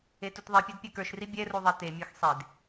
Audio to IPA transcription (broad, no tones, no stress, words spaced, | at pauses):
etutðˤipʲɛd pʲɛkə˞ʃri bʲɛru ðˤɛtemʲə˞x sˤed